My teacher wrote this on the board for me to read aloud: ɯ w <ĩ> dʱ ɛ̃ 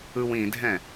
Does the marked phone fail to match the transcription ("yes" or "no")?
no